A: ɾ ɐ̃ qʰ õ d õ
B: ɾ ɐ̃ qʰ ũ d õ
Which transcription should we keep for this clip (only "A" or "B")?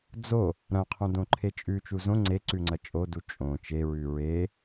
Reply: A